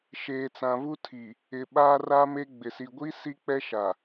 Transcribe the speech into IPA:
ʃeː˨t͡sã˨vu˦tʰi˨ | ɪ˨ ɓaː˦raː˦me˦ɡ͡bɪ˨ si˨ɡʷi˦ si˦k͡pɛ˦ʃa˨

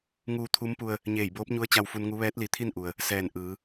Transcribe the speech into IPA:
ŋuː˧t̪ʰu˧˥mpu˧ə̯ | ɲeː˧˩jboː˧˥p̚ɲu˧˥ə̯ t͡ɕa˧wfu˧nŋu˧˥ ʋɛː˧˥t̚li˩˧t̪ʰi˥˨nʔu˩ə̯ | sɛː˧˩n ʔɯː˩˧

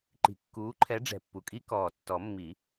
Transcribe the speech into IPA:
ǃi̤˨˩kːuː˨˦ǃʰɛ˨˦ ɖ͡ʐɛ̤˨˩pːu˨˩kʼi˦˥ kɔː˨˩tːɔ˨˩˦ mːi˨˩˦

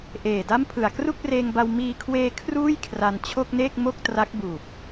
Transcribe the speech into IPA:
ʔeː˨˩da˥˩mpʰɯ˨˩a̯ kru˥˩k̚reː˧ŋba˧w miː˧kʰweː˧ kʰruː˥˩jkʰra˧n t͡ɕʰo˥˩k̚neː˥˩k̚ mo˥˩k̚ tra˦˥k̚buː˨˩p̚

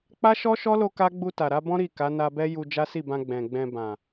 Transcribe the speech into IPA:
k͡pa˦ʃɔ˦ʃɔ˦lo˧ ka˦ ɡ͡bu˧ta˨ɾa˧bɔ̃˦ ɾi˦˨ ka˨˦na˧bɛ˦ ju˧ d͡ʒa˦si˦˨bã˧ ɡ͡bɛ̃˨ɡ͡bɛ̃˧ bã˨

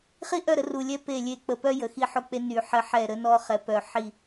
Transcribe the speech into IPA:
χi˦ ʔœ˦˨ɾə˦ru˨lʲɛ˦ pe˦˨lʲe˦˨ k͡pə˨pœ˦ jə˨xi˦ħo˦k͡pe˦ ny˨ħə˦ħɛ˦˨ ɾə˦nɔ˦ χɛ˨pœ˨ ħi˦˨

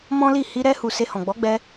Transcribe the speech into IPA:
mɔ̃˦li˦˨ hi˧ɾɛ˧hu˨ se˧hɔ̃˨ɡ͡bɔ˨˦ɡ͡bɛ˧

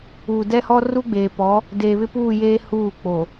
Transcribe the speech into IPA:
uː˨dɛ˦hɔ˦ ru˦ɡ͡beː˨pɔ˨˦ | deː˨βɪ˦puː˦˨jeː˦ huː˦˨k͡po˨

